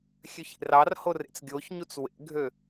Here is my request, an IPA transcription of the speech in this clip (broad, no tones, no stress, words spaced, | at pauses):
xʲøçḛrɑrho rḛt͡sɡʲoçɲut͡s wḛɡʱø